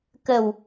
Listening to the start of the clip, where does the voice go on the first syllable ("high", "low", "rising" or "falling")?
low